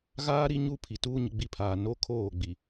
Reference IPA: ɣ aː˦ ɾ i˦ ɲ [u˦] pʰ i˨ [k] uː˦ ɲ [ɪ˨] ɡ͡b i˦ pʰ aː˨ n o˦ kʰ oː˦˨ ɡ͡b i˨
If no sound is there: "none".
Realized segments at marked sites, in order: u˦, t, ɪ˨

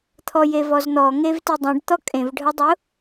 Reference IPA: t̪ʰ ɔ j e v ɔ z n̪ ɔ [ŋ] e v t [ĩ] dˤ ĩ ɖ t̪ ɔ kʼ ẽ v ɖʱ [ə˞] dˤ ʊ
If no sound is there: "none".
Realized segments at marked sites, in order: ŋ, i, ɤ

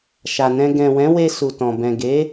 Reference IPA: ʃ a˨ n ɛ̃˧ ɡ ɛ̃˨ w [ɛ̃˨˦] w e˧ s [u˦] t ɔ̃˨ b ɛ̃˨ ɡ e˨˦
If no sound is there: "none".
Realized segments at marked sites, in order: ɛ̃˨˦, u˨

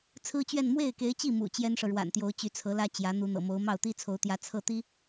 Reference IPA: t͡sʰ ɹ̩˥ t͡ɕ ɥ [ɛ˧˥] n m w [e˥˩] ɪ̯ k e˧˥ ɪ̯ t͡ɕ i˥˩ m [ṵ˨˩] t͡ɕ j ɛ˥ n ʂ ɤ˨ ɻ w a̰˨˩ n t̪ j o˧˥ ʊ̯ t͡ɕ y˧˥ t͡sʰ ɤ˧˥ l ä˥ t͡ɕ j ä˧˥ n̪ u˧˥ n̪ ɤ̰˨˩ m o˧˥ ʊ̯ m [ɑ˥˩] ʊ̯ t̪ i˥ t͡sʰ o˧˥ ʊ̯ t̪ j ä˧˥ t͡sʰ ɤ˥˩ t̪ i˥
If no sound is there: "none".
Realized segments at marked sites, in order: ɛ˥˧, e˥˩, ṵ˨˩, ɑ˥˩

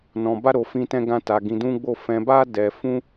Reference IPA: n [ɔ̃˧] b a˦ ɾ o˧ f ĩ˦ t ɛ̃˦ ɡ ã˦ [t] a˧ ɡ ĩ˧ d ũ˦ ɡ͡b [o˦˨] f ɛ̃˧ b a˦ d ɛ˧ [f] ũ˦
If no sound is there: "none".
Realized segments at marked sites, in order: ɔ̃˧, t, o˦˨, f

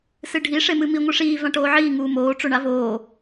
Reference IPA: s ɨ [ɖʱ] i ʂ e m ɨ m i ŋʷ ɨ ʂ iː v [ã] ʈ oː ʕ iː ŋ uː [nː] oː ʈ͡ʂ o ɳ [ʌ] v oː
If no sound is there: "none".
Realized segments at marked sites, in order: ɖʱ, ã, m, a

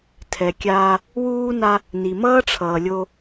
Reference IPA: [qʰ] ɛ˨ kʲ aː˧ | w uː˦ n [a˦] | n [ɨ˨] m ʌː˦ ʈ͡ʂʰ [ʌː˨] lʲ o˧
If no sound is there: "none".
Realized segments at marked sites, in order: tʰ, a˦, i˨, ʌː˨

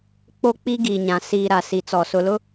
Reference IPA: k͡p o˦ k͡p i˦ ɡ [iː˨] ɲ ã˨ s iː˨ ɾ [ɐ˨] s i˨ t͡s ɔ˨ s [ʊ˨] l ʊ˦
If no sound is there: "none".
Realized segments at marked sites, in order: i˨, a˨, ʊ˨

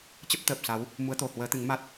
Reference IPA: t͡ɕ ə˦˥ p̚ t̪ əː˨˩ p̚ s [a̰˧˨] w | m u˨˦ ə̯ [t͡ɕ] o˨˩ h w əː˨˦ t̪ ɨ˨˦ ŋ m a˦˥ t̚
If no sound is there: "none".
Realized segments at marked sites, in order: a˨˦, t̪

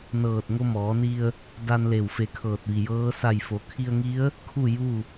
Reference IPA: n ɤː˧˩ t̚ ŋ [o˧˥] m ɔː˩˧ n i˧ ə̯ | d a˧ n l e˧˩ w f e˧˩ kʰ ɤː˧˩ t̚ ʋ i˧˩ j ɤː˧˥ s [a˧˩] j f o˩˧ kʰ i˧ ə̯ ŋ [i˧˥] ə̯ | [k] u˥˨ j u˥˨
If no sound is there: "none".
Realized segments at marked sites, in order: o˧, a˧˩, i˧˥, kʰ

